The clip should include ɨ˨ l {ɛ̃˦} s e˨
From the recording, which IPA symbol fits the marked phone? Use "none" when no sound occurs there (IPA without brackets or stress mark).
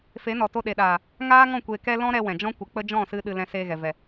ɛ̃˨